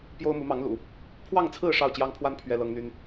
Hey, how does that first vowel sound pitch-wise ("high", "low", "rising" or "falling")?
high